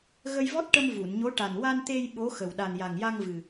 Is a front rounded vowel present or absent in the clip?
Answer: absent